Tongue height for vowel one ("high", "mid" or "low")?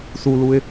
high